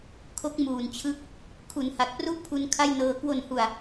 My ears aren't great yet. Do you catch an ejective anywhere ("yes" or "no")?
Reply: no